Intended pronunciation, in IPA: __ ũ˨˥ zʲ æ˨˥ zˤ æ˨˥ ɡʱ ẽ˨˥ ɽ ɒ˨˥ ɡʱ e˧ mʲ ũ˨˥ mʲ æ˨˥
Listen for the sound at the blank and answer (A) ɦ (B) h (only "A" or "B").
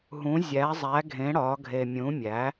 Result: A